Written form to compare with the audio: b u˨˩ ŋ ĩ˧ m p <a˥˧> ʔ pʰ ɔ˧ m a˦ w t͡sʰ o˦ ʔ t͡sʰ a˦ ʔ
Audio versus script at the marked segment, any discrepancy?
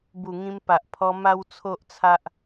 yes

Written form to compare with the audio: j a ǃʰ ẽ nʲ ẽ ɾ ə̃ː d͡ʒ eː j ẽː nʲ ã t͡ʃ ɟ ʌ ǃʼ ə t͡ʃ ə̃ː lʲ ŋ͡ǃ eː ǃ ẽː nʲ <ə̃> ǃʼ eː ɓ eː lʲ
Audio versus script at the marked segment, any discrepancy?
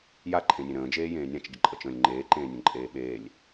no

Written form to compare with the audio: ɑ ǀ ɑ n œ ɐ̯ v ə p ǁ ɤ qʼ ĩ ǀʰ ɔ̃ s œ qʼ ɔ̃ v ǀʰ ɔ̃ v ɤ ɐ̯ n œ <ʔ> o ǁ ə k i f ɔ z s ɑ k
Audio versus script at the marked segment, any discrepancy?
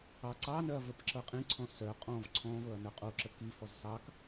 yes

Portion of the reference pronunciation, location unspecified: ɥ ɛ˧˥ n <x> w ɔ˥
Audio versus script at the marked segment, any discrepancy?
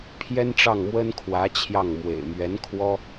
yes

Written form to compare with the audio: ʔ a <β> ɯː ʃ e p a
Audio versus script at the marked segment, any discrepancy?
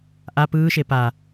yes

